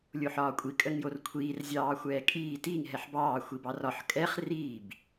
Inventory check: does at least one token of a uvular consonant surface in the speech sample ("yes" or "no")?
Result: yes